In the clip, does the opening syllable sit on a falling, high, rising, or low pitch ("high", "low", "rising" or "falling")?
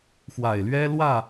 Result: low